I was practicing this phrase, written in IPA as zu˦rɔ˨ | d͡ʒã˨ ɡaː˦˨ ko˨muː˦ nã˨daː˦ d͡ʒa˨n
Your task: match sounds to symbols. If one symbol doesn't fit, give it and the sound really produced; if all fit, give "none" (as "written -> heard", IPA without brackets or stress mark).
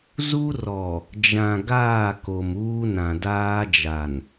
none